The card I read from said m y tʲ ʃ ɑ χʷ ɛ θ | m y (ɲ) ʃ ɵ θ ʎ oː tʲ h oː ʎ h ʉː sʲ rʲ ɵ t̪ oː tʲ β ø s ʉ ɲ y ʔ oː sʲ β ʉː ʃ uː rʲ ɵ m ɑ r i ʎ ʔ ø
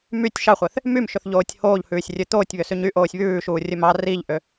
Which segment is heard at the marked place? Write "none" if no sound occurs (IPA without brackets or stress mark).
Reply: m